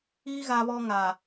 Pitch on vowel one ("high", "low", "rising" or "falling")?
high